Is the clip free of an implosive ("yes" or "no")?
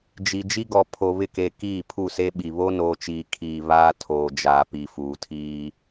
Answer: no